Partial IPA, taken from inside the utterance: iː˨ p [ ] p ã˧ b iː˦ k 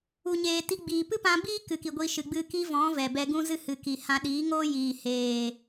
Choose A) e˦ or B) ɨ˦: B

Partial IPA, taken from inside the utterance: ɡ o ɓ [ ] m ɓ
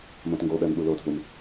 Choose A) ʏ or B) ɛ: B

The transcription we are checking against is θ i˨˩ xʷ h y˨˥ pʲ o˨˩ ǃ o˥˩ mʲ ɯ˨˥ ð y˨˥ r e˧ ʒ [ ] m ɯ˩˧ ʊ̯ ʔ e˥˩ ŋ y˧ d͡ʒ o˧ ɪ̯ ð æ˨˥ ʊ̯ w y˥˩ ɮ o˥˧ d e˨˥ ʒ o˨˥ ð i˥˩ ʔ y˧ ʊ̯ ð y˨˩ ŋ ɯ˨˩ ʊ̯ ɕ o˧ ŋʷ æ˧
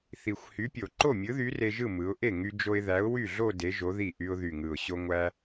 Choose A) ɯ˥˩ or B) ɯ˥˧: A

